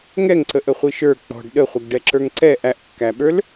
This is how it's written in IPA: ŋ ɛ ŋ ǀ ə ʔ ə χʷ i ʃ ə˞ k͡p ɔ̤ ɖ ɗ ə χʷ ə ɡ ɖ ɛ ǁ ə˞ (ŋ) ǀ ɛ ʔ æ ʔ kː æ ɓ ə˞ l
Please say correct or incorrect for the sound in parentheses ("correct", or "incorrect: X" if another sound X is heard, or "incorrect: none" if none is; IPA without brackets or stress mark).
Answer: correct